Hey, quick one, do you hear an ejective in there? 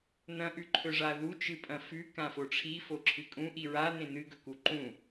yes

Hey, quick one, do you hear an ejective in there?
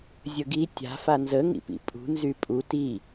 yes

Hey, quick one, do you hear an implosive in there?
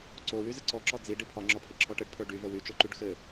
no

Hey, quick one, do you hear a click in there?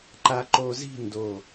yes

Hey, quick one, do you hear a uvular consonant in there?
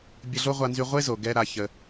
yes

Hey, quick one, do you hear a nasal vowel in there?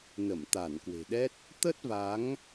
no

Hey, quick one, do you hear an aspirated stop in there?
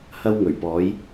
no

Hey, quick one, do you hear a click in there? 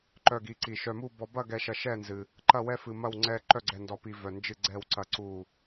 yes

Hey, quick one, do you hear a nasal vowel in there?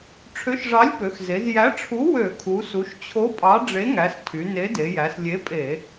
no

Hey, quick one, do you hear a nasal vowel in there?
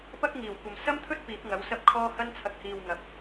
no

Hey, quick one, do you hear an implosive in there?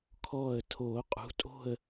no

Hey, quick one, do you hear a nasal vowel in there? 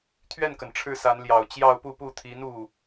no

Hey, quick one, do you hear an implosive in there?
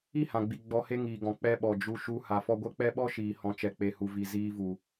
yes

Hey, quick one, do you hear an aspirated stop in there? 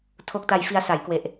yes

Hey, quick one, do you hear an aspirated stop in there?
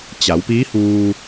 no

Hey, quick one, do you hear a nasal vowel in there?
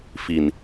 no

